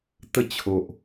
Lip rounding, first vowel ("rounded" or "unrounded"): unrounded